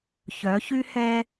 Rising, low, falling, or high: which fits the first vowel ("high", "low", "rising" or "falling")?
rising